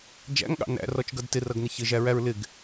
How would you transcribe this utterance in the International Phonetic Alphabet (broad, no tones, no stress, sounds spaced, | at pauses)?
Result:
d͡ʒ æ̰ ŋ ɠ ɑ̰ n æ̰ r ɔ t͡ʃ ɡ ʌ d t ɪ r ʌ ɡ n ɪ ç ɪ ʒ æ ɹ æ ɹ l ɪ ɡ